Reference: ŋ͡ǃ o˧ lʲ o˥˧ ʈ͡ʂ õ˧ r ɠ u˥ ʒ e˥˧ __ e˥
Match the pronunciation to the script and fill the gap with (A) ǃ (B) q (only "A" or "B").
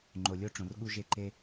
A